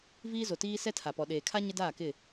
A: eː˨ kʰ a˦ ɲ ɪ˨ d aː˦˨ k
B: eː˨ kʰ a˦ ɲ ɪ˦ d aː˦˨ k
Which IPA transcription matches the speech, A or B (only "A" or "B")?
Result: B